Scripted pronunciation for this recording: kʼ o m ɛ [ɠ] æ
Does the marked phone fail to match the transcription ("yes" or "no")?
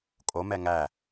yes